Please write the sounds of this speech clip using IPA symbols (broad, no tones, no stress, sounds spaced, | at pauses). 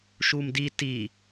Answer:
ʃ u m d i t i